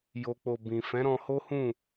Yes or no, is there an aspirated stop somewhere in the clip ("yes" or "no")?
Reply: no